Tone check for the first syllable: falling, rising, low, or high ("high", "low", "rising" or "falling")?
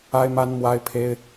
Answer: high